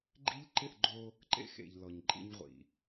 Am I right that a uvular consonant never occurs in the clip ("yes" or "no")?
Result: no